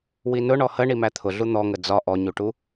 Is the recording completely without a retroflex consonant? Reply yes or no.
no